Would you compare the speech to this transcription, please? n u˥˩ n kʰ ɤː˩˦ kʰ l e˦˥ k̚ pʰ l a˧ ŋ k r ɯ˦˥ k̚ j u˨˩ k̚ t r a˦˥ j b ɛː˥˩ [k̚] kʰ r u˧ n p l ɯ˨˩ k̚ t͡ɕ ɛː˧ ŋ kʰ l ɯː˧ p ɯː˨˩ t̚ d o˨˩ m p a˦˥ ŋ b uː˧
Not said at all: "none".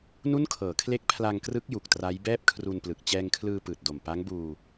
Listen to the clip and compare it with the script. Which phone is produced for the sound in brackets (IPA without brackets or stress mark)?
p̚